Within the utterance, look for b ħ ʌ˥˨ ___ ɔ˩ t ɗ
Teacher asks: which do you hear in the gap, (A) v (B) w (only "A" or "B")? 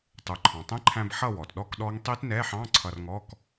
B